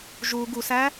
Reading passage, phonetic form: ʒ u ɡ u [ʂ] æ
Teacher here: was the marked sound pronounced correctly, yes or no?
no